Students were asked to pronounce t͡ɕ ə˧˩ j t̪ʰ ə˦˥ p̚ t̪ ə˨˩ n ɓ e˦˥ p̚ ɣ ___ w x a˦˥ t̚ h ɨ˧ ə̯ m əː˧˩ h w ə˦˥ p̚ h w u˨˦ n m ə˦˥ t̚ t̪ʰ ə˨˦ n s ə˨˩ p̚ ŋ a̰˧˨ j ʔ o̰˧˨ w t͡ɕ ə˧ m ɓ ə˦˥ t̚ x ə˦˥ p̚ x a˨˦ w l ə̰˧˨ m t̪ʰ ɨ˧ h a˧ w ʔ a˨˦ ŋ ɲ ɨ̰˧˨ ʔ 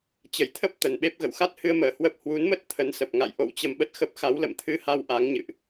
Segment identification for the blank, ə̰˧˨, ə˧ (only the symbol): ə̰˧˨